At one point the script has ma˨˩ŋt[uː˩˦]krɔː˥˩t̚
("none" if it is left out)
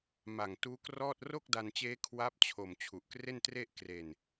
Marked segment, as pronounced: uː˦˥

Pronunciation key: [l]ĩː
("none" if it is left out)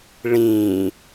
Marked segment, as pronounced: ɭ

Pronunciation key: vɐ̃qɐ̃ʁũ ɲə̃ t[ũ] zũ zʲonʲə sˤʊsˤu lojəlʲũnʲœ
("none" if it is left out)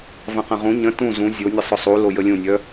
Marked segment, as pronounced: ũ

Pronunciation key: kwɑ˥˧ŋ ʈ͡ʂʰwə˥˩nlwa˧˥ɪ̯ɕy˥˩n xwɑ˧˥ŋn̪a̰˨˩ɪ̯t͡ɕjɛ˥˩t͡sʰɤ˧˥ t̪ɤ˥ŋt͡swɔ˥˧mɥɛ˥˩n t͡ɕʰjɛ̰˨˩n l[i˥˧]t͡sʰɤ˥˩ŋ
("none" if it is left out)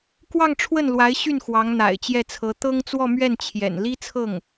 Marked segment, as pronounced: i˥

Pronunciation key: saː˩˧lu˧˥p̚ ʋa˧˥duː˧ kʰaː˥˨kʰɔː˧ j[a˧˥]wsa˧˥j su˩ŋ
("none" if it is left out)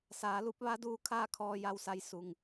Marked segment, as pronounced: a˧˥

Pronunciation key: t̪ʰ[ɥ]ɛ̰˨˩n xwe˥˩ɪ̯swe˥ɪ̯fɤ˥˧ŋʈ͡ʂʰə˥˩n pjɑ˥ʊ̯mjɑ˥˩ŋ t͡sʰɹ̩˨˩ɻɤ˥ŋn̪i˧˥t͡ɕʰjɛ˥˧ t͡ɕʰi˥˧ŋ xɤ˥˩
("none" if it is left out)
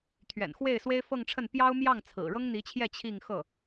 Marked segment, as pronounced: ɥ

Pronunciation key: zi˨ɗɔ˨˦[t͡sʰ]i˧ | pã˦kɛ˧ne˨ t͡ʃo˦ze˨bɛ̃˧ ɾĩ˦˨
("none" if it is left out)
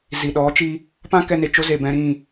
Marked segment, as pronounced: t͡ʃ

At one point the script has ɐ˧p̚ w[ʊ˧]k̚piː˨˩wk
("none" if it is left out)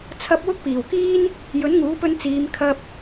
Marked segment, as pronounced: ʊ˥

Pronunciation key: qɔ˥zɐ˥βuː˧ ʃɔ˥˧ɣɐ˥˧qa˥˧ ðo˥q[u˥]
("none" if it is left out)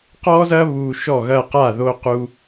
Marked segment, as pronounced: u˥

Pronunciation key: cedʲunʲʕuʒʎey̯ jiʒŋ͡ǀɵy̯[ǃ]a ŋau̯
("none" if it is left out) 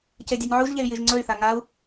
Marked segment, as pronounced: θ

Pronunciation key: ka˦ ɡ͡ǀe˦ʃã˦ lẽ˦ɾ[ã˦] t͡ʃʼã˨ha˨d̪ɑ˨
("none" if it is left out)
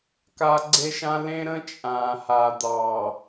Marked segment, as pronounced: ə̃˦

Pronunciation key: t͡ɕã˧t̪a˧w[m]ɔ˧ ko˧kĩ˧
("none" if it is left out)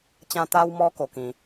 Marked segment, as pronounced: m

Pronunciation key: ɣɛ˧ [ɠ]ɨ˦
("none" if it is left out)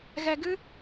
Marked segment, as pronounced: ɡ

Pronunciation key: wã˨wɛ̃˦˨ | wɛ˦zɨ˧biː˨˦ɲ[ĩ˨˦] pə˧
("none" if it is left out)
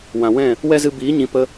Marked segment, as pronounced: ĩ˨˦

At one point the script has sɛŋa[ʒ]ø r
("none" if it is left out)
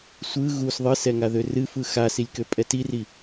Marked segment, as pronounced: ð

